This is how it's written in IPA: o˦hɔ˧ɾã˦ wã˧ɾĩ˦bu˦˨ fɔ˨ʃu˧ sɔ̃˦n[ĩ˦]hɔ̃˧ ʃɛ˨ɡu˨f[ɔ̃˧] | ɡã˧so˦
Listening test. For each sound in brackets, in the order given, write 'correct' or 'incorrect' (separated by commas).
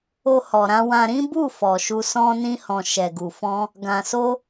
correct, correct